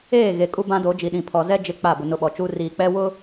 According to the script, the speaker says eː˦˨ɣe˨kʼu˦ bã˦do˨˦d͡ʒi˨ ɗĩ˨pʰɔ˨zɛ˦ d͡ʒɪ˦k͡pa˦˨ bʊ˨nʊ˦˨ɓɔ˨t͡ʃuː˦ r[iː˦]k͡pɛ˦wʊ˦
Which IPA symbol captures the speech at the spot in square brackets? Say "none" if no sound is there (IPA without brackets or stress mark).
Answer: iː˨